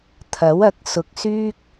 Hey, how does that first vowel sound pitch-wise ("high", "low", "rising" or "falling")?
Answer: rising